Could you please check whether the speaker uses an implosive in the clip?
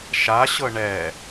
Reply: no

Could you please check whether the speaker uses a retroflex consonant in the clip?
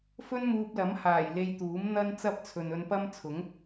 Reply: no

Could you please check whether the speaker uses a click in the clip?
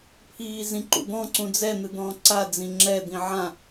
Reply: yes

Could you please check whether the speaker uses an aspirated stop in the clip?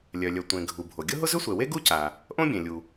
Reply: no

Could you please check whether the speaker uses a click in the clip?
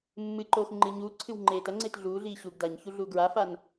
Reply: yes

